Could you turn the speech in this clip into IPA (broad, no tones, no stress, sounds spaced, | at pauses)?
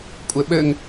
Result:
kʷʼ ɘ ɓ ɘ ŋ